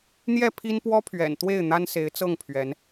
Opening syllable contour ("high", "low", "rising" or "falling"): falling